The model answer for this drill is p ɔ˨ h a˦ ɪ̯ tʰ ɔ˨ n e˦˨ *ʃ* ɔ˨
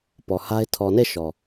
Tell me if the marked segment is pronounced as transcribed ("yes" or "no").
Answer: yes